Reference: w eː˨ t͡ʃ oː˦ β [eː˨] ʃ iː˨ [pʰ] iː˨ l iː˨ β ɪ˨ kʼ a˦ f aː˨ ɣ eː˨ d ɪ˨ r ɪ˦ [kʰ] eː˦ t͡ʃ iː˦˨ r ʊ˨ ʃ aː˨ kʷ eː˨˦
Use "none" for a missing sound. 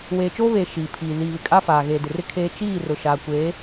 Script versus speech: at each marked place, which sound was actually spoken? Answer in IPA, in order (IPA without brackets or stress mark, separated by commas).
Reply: eː˨, pʰ, kʰ